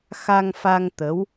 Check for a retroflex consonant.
absent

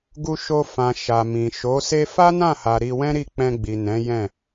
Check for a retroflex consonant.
absent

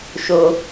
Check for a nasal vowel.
absent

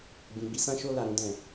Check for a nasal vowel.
present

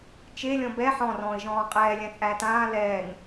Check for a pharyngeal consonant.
present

